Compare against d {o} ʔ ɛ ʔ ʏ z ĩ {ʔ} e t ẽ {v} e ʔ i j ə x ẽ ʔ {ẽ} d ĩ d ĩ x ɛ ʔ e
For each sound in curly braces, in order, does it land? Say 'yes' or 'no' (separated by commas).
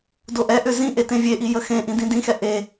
yes, yes, no, no